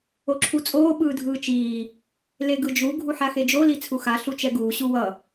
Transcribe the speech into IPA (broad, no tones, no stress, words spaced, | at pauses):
oǁʰut͡sʼoː ɓɯːdʱɯːt͡ʃiː | leɡɯd͡ʒu ɡʱuħaxed͡ʒo lit͡sʰuxa ɬut͡ʃɛɡuː ɕuwʌ